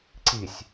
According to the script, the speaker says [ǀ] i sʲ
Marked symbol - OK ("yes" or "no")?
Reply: yes